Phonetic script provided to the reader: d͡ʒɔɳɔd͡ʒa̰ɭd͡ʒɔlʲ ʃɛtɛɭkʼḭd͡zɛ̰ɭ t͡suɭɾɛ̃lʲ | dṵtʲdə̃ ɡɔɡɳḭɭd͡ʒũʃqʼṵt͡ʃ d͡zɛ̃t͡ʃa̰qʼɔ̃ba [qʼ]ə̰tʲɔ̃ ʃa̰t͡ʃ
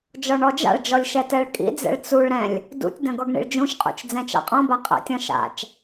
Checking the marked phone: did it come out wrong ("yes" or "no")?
no